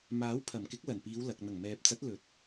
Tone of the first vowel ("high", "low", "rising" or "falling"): rising